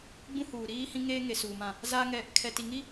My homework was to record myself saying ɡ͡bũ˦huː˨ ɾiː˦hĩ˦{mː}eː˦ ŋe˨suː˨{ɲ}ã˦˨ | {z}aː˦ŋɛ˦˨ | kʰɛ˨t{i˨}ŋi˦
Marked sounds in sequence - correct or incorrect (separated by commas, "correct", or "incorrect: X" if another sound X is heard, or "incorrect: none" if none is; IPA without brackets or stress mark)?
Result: incorrect: ŋ, incorrect: m, correct, correct